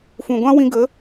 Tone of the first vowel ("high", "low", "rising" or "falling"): low